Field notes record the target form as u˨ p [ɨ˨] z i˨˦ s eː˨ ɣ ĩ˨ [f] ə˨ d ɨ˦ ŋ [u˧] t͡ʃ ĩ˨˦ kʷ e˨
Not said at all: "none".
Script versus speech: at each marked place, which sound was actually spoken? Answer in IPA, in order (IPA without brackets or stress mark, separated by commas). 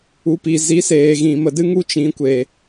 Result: i˨, m, u˦